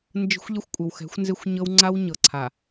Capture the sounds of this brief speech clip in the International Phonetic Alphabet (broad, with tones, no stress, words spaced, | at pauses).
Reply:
nd͡ʒə̤˦xʷʎɪ˦xʷkʷʼɪ˨wxɛ̤˨˦xʷ nzɪ˦xʷɲɤ˦wŋ͡ǀa˦wɲɤ˨ ǀʰa˨